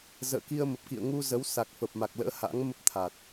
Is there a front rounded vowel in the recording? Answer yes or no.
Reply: no